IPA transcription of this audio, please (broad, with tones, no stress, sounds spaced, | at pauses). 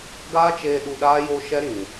ɡ aː˦ t͡ʃ eː˧ ɗ u˧ ɗ aː˦ j oː˦ ʃ ɛ˦ ɾ ĩ˨